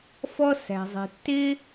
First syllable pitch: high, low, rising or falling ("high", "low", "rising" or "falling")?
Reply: high